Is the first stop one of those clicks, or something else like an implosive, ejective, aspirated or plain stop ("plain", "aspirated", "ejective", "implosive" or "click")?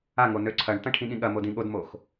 click